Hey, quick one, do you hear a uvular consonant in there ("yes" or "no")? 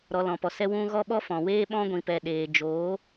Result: no